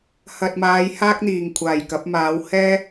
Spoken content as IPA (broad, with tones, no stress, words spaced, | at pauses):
hɐ˨t̚maː˨˧jhaː˥k̚n̪iː˨˩ŋ kʷʰaː˨˩jkɐ˨˥p̚maː˨˥w hɛː˥